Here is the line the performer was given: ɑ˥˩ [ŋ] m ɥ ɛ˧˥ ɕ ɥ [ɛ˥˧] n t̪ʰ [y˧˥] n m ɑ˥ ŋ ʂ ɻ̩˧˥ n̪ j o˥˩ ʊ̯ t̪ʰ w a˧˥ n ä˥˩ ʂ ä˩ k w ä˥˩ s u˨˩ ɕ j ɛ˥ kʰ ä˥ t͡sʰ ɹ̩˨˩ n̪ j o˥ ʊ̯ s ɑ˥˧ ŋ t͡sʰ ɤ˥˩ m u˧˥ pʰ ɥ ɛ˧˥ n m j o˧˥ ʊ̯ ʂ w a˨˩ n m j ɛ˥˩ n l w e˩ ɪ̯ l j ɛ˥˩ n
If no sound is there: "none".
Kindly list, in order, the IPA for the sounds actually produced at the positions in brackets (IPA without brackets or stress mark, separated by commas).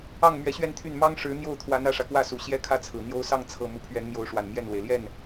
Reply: ŋ, ɛ˥˧, y˥˩